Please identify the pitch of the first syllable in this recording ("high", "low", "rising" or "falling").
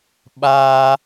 high